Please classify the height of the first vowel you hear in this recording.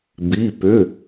high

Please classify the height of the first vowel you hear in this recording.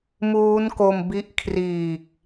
high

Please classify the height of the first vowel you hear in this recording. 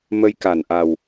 mid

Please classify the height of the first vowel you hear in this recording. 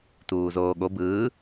high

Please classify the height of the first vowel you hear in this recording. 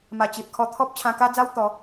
low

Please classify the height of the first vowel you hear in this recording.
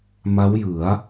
low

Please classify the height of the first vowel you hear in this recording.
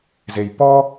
mid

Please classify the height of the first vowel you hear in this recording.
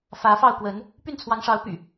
low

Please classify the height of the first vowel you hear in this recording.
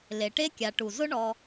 mid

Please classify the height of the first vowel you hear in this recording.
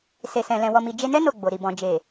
mid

